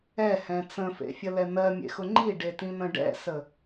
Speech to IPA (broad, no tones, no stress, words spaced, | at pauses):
ɛhɛ̃ t͡sə̃fḛfʲəlɛ n̪ɜmʲḛxʊ ŋ͡ǃiɖetĩn̪ə̃ ɖɛ̰sə